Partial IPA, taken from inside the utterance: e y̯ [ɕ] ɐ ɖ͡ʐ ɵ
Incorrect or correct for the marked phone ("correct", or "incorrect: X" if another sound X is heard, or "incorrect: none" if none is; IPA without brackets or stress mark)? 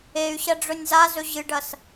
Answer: correct